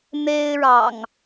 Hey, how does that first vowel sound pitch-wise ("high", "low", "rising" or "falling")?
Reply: high